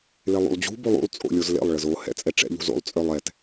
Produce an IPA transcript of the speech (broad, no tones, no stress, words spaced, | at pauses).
lelˠṵlˠd͡ʑṳ bolˠṵlˠ t͡sʼo̰lʲozlḛlˠ ɭəzo hɛ̰t͡sʼɛʈ͡ʂɛ̰ ʎṳzo̰lˠ t͡sʼœlˠɛt